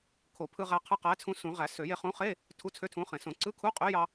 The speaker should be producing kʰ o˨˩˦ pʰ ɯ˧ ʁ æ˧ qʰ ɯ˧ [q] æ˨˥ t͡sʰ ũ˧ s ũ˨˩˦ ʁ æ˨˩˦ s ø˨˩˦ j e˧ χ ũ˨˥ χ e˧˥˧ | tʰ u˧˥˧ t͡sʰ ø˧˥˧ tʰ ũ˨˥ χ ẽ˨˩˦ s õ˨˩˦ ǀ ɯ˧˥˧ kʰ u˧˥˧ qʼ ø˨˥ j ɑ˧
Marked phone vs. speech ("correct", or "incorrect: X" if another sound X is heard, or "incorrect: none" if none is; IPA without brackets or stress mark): correct